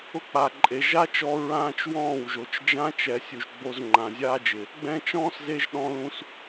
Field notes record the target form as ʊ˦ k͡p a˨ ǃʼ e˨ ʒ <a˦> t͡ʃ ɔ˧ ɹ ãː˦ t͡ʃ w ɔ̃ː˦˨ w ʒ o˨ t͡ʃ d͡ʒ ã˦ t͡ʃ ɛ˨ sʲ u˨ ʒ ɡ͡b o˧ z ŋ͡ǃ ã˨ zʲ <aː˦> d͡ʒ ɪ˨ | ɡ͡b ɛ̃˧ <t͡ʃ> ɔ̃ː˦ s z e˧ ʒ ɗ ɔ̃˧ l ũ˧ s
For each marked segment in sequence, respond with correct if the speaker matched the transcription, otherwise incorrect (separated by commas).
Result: correct, correct, correct